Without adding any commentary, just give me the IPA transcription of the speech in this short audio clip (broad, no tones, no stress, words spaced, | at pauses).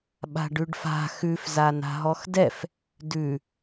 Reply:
ɓa̤ɖʉɖfa̤ xʉf zana̤ɦɔxdɛf | dʉ